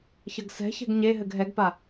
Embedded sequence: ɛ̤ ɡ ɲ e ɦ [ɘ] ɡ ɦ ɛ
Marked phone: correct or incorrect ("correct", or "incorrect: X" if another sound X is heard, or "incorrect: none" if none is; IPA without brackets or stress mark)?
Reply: correct